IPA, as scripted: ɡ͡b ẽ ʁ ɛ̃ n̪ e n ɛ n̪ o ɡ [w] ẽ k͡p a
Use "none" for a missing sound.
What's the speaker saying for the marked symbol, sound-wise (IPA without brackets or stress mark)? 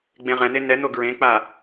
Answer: ɹ